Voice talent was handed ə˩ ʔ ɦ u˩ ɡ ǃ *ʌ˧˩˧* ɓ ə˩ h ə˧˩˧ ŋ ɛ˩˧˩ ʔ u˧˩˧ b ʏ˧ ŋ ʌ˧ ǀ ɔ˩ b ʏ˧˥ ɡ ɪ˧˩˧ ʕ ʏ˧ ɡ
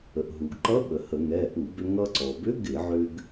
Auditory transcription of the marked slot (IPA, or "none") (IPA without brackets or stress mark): ʌ˧˥